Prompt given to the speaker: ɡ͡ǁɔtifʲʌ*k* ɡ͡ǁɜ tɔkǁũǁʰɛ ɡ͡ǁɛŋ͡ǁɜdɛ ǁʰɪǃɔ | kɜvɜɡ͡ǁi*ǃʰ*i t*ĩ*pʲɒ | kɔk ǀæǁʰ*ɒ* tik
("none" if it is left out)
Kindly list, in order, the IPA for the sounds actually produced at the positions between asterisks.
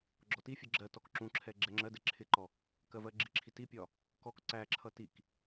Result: none, ǁʰ, i, ʌ

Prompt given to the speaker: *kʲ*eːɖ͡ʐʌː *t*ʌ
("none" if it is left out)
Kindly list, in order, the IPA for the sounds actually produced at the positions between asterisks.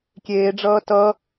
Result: kʲ, t

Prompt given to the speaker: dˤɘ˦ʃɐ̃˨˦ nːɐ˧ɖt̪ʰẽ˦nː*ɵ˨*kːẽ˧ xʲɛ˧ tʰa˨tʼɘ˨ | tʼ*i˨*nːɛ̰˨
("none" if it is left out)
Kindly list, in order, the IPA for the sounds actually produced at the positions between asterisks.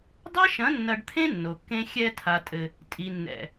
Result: o˨, i˨

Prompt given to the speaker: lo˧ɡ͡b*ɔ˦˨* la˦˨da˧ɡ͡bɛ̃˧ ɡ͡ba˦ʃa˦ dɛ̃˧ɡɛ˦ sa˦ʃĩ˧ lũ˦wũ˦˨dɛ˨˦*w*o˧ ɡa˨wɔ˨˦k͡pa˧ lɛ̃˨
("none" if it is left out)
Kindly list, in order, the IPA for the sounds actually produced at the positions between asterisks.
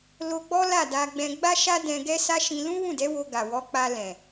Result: ɔ˦, w

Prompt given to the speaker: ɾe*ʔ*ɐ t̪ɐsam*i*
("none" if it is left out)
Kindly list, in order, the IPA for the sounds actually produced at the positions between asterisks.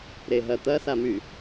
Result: ɦ, y

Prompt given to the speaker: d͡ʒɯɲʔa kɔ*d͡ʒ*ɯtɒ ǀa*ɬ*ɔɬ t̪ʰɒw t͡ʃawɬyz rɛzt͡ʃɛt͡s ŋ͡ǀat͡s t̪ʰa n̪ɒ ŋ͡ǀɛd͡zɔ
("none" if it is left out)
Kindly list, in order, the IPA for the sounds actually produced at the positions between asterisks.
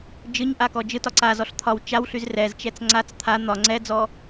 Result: d͡ʒ, z

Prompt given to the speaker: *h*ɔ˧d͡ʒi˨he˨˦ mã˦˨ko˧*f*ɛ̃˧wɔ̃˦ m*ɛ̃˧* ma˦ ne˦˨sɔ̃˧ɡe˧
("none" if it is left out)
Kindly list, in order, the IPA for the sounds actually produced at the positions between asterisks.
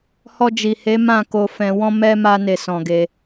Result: h, f, ɛ˧

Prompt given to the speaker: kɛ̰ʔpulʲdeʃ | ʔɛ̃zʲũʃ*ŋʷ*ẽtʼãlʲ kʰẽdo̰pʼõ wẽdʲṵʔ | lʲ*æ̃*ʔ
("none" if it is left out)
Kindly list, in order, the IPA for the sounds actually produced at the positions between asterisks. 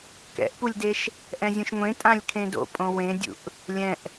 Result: ŋʷ, ɛ̃

